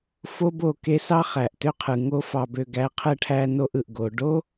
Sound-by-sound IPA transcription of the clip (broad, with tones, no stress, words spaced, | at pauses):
fo˦bo˦˨ke˦ sɑ˦χæ˨ʔtø˦ qʰɯ˨ŋo˦fɑ˧bø˧ ɡæ˨˦qʰɯ˧ʈʰæ˧ no˦ʔɯ˨ʔ ɡo˨ɖo˦